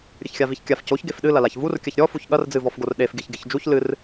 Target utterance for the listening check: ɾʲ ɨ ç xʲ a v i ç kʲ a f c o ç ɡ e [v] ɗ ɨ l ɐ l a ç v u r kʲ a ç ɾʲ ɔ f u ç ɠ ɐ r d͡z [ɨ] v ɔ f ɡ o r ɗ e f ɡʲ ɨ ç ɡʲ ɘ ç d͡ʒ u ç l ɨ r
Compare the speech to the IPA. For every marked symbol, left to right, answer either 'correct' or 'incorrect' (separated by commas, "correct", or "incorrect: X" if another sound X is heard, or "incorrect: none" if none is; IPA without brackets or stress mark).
incorrect: f, correct